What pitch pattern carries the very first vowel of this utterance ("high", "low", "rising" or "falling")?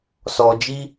high